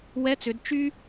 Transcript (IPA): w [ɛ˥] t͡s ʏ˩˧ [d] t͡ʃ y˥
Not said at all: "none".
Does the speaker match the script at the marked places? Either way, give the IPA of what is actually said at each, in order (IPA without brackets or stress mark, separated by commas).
ɛ˧˥, d